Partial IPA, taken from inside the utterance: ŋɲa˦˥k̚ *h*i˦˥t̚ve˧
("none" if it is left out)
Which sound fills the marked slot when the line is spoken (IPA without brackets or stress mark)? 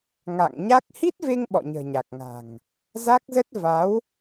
h